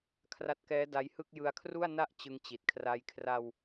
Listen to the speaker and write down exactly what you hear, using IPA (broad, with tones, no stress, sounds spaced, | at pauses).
kʰ r a˦˥ t̚ k ɛː˦˥ d a˦˥ j h ɯ˥˩ k̚ j ɯ˧ a̯ kʰ r u˥˩ a̯ n a˥˩ ʔ t͡ɕ ɯ˧ ŋ t͡ɕ i˨˩ t̚ kʰ r a˧ j kʰ r a˧ w